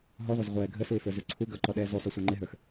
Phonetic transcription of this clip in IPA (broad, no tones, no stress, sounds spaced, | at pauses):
ɦ ɔ ʁʷ ʌ z ʁʷ ɛː ɡʱ ə s u ɪ̯ f ə˞ z u ǀʰ u ɡ ʌ ǃ ɔ ɗ ɛː z u sˤ u sʷ ə˞ ŋ͡ǃ ɪ ɦ ə˞ x